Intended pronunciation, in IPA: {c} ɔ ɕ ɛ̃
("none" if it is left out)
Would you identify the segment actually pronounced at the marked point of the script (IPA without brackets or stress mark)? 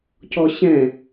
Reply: c